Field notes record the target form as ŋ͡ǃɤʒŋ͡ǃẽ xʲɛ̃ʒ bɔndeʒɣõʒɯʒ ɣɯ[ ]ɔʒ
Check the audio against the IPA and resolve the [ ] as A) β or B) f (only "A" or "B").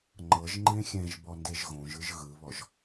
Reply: A